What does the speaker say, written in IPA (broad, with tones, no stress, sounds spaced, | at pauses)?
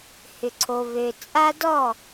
h ʏ˨ ǀʰ o˨ β ø˨ t͡sʼ a˦ d ɔ˦˨